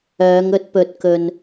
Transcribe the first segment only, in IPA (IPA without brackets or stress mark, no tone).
œː